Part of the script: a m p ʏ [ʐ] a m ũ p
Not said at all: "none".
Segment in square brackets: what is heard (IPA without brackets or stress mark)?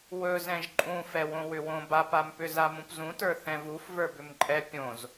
z